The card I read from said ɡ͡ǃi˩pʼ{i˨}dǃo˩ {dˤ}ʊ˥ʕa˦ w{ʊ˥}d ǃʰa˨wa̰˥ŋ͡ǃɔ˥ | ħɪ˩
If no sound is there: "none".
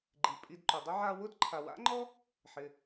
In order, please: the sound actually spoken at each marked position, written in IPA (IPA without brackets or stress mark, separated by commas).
i˨, dˤ, ʊ˥